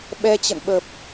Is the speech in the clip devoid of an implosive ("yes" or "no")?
no